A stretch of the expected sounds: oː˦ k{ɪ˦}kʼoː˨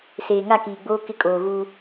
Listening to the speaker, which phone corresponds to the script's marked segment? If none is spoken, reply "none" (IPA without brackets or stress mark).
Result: ɪ˦